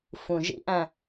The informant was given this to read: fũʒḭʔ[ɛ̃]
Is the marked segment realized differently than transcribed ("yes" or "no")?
yes